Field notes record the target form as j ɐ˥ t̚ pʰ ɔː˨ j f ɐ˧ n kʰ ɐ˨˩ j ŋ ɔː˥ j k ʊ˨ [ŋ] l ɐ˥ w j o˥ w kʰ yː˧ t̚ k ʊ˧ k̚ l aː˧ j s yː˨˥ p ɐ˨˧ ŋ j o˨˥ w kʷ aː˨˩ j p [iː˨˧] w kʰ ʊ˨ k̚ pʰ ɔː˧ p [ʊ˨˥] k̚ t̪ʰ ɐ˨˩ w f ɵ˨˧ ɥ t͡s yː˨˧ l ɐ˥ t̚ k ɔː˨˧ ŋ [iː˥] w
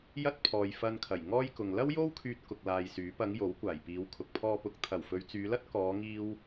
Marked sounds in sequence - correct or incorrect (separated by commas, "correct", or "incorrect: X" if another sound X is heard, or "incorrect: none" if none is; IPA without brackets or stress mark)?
correct, correct, correct, incorrect: iː˧